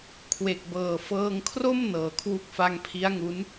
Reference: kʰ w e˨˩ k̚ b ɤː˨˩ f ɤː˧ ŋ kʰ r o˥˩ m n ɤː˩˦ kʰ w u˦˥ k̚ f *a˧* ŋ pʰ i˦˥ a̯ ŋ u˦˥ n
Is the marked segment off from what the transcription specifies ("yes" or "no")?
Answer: no